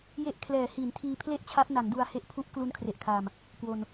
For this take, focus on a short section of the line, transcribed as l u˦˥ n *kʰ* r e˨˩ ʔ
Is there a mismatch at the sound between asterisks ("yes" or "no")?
no